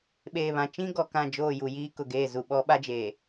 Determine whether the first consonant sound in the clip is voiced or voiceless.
voiced